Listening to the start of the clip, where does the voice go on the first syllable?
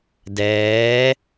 rising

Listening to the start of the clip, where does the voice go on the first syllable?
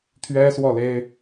high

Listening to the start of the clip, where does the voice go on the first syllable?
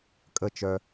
falling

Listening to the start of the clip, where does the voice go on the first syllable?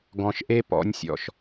low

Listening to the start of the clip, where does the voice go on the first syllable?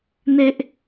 high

